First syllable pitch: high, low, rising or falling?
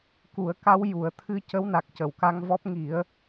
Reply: low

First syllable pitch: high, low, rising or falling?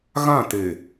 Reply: falling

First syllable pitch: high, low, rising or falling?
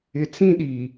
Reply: low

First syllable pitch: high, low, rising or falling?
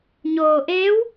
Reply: low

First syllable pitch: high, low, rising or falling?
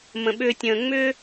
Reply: low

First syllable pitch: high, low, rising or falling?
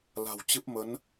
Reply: low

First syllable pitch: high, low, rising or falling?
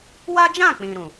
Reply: high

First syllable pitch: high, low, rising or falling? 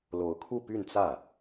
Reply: rising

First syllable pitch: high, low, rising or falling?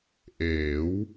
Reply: rising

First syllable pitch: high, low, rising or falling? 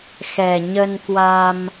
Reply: low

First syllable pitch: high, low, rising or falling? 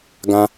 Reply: high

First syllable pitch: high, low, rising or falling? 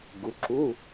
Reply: rising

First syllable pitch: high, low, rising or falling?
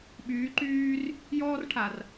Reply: rising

